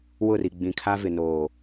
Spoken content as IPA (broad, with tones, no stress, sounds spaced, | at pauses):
w ʊ˦˨ r i˨ ɡ͡b ĩ˨ kʰ a˦ v ɪ˨ n oː˨